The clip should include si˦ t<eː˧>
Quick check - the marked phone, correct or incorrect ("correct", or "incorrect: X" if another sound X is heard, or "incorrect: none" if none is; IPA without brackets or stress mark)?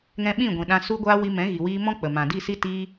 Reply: incorrect: iː˧